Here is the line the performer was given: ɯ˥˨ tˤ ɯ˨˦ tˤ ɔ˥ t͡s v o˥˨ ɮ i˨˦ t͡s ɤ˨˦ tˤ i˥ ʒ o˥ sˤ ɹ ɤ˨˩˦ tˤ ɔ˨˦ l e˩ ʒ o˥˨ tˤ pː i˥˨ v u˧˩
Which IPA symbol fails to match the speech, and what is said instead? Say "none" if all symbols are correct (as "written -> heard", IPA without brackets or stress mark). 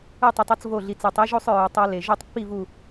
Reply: none